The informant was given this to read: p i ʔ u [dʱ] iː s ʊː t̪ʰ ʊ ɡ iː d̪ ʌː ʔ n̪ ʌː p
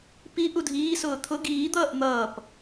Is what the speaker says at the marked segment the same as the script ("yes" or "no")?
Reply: yes